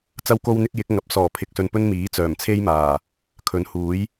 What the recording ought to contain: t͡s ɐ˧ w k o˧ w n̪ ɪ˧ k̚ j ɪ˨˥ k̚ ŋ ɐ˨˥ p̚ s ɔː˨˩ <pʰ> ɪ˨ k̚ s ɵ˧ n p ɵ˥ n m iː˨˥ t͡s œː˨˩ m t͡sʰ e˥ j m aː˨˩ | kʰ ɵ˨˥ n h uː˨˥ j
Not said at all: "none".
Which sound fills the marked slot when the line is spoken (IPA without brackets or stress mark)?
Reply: pʰ